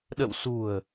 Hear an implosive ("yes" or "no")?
yes